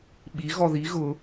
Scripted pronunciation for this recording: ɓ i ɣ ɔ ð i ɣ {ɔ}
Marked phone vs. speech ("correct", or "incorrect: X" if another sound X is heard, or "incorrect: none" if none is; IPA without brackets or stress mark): incorrect: ʊ